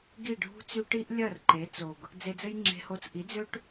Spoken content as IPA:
ɡ i˦˨ ɖʱ ṳ˦ t͡s y˦ ʈ i˦ ʔ lʲ ɐ˦˨ r ǃ e˨˦ t͡s o˨ ɡ | d͡z e˧ d͡z ɘ˦ j ŋ͡ǁ e̤˧ h o˧ t͡s ʔ i˨˦ d͡z ø˦ ʈ

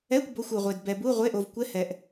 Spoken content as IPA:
ɛ˧˥˧ kʷ b o˧˥˧ xʷ u˨ ʁʷ e˨ d b ɛ˨ b u˧˥˧ ʁʷ e˧˥˧ ʔ o˨ v kʷ ɛ˧˥˧ h ɛ˨ ʔ

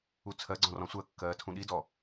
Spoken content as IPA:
u t͡sʰ ɜ ɡ͡ǀ ɔ̃ r ɔ̃ sʷ ɜ kː ɜː tʰ ũ ɗ i d ɔ

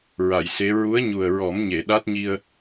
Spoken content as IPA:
ɹ a˨˩˨ j s e˧˥ ɹ u˧˥ ə̯ ɲ u˨˩ ə̯ ɹ ɔ˨˩˦ m ɲ e˨˩˨ ɗ a˦˥ t̚ ɲ i˧ ə̯

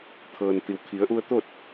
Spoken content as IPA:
t̪ʰ ɤː˩ n t̪ i˩ w kʰ i˩˧ ə̯ ʔ u˧ ə̯ t̪ o˥˨ t̚

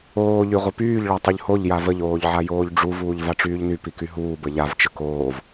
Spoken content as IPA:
oː ʎ y ʁʷ ə p yː ʎ ɭ a tˤ y ʎ h o ʎ j a v ə ʎ oː ʎ ʕ a j oː ʎ ɖ͡ʐ u v uː ʎ v a ʈ͡ʂ yː ʎ n y p i k y ɦ uː b ə ʎ a v t͡ʃ ə k oː v

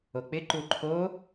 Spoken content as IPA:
o k͡p ɪ ǃ u ǃʰ o

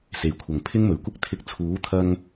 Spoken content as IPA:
s e˨˩ j kʷʰ ɐ˨˩ ŋ pʰ ɪ˥ ŋ m ɵ˨˩ ɥ kʷ ɪ˥ k̚ t̪ʰ ɪ˧ k̚ t͡sʰ uː˨˥ t̪ʰ ɐ˧ ŋ

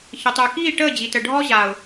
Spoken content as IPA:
ç ə˨ tˤ yː˨ k iː˦˨ ʈ əː˦˨ d͡ʑ i˨ t ə˨ ɖʱ ɔ˦ ʑ aː˨ ʊ̯

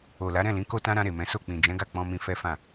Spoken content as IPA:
o˨ l a˨˦ ɾ ɛ̃˦˨ l ĩ˨˦ k o˧ t ã˧ ɾ ã˧ ɾ e˨ m ɛ̃˨˦ s o˦˨ k͡p ĩ˨ d͡ʒ ɛ̃˨˦ ɡ a˦˨ k͡p ɔ̃˧ m ĩ˧ f ɛ˦ f ã˦˨

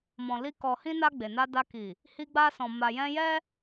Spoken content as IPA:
m ɔ̃˨ l i˧ k ɔ˨ h ĩ˧ n a˧ ɡ͡b e˨ n a˧ d a˧ k i˨ | h i˧ ɡ͡b a˧ s ɔ̃˨ m a˨ j ɛ̃˧ j ɛ˦

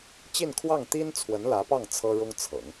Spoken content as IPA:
t͡ɕ i˥˧ n kʰ w ɑ˥˩ ŋ t̪ i˥ n t͡sʰ w ə˧˥ n l ä˧˥ p ɑ˥˩ ŋ t͡sʰ ɤ˥ ɻ ʊ˥ ŋ t͡sʰ ɤ̰˨˩˦ ŋ

